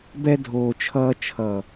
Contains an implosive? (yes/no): no